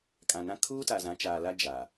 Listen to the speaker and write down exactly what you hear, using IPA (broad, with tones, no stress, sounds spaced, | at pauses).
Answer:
kʼ ã˨ n ã˦ kʰ uː˦ t a˨ z ã˨˦ t͡ʃ aː˨ l a˦ d͡ʒ a˨